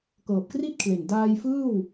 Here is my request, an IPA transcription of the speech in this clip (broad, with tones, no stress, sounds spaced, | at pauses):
k ɤː˨˩ p̚ k r i˥˩ t̚ kʰ l e˨˩ n d aː˧ j f ɯː˥˩ w